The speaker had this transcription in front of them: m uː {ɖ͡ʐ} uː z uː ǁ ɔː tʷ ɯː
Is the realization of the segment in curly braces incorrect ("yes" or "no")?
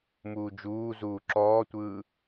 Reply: yes